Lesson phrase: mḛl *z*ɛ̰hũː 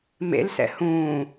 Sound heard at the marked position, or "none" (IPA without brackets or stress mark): s